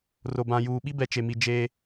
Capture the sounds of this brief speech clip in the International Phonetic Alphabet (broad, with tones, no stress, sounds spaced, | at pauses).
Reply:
r o˨ b ã˨ j uː˨ ɓ i˦ b ɛ˨ t͡ʃ e˨ m i˨ d͡ʒ e˦